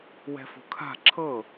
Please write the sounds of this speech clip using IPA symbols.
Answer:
wɛ̤fo̤kʰa̤ ǁʰɤ

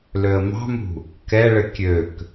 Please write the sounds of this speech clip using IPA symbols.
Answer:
løə̯mɑ̤mṳ | kɛɭɘ kʲøk

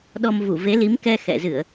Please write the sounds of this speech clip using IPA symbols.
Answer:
ɗɔ˧m vu˧˩ve˨˦li˨˦mkɛ˧ xɛ̰˧˨zɨ˧˩˨ə̯

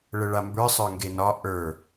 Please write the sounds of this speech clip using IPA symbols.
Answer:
ɭəɭambə˞ sˤə˞ŋɡenɒ ʔə˞

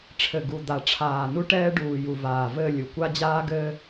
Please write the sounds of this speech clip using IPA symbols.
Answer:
ʈ͡ʂʰɘ˨ ɡu˨ d̪a˨ʈ͡ʂʰaː˨nu˦ ʈɛː˦ɖuː˨ju˨ vaː˨vɘ˦˨lʲu˨ kʷa˦d͡ʑaː˦ɡɘː˦

